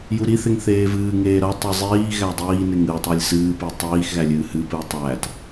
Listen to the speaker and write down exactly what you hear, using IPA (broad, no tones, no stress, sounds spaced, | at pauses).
j u ɾ i θ e ŋ θ eː v ɨː ŋ eː ɾ ʌ tˤ ɨ zˤ iː ɣ æ dˤ iː n e ŋ ɨ tˤ æ lʲ s ɨː p i tˤ iː x ɣ æ lʲ ɨː h ɨ p ɨː tˤ æ t